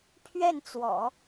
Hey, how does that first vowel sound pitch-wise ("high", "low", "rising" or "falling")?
falling